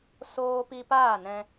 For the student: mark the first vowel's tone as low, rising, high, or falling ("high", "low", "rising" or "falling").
high